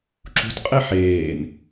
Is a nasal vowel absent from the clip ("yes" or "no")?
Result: yes